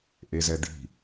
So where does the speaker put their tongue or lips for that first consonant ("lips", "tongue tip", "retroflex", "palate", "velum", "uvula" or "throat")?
throat